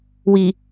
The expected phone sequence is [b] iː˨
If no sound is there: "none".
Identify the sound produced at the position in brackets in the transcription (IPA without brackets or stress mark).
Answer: w